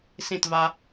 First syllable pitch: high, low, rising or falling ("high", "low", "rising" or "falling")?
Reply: falling